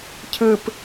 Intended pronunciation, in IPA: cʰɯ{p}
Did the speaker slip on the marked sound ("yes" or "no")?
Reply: no